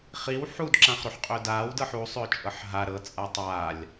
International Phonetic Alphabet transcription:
χ i w ħ u d ǁ ã χ ɾ u ħ qʼ ʏː d aː w d ɤ ħ u sˤ ʏː t͡ʃʼ ɤ ħ ɦ a ɾ ɤ t͡sʼ a tˤ aː lʲ

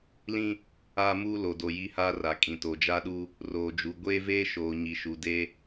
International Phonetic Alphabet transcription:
l ĩ˦ | aː˦ m uː˦ l o˨ d o˨ j i˦ h aː˦ r a˨ kʼ ĩ˨ t o˨ d͡ʒ a˦ ɗ u˦ | r oː˨ d͡ʒ u˨ ɡʷ eː˦ v eː˦ ʃ oː˨ ɲ i˨ ʃ u˨ d e˦

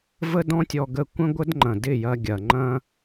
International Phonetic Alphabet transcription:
v ə˦ d ɔ̃˦ tʲ ɔ˧ ɡ ə˧ kʷ ə̃˦ ɡʷ ə˦ d ŋ͡ǃ ɐ̃˨ d ɪ˦˨ j ɐ˧ ɡʲ ɐ˨ ŋ͡ǃ ɐ̃˦

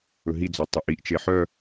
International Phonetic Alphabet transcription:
ɵ ɦ i d͡z ɔ tˤ œ ʔ i ʔ t͡ʃ e ħ œ

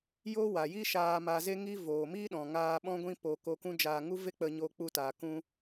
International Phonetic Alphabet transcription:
j o˦ w a˨ j i˦ ʃ aː˧ m a˧ z e˦ ŋ i˧ v oː˨ m iː˦ ɗ ɔ̃˨ ŋ aː˧ ɓ ɔ̃˦ ɡʷ ĩ˦ p o˧ k o˧ k ũ˦ d͡ʒ aː˧ ŋ u˦ v e˦ k͡p ə˧ ɲ oː˦ k͡p u˦ t aː˧ k ũ˦

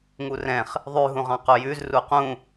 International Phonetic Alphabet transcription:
ŋ u r ɛ̃ χ | ðˤ ʉ ɦ ũ ʁ ɑ̃ q o j ʉ z r u q ũ

